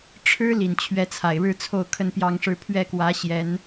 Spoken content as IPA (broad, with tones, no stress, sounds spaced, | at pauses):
ʈ͡ʂʰ ɻ̩˥ l i˨˩ n t͡ɕʰ ɥ ɛ˧˥ t͡sʰ a˨˩ ɪ̯ ɻ ɻ̩˥˧ t͡sʰ o˥˧ ʊ̯ kʰ ə˥˩ n p j ɑ˥ ŋ ʂ ɻ̩˥˧ pʰ ɥ ɛ˥˩ k w ä˧˥ ɕ j ɛ˧˥ n